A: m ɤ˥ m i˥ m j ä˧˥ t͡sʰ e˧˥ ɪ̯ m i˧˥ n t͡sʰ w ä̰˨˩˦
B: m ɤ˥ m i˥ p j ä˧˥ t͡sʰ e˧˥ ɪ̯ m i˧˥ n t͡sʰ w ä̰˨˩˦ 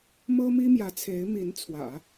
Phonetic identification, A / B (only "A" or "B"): A